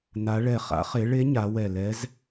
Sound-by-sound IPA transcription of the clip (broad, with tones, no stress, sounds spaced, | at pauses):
n a˩˧ ɭ ɛ˨˩ χ a̰˩˧ χ e˩˧ ɭ e˧˥ ɲ a˩˧ w ɛ˨˩ l ɛ˧˥ z